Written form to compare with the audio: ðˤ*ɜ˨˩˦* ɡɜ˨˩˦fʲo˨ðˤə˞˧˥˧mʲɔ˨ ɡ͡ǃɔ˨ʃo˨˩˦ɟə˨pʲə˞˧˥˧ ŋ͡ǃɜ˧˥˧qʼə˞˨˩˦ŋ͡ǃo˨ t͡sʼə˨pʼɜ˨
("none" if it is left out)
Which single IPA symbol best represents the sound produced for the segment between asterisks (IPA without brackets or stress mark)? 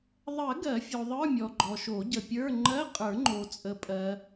ɜ˨˩˦